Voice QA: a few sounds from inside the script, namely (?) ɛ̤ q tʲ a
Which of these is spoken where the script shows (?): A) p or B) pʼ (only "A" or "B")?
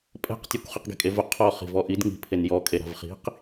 B